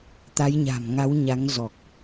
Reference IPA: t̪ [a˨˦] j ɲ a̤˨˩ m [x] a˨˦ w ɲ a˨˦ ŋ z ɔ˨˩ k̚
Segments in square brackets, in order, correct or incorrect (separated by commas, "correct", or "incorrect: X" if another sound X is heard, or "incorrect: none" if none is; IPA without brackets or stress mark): correct, incorrect: ŋ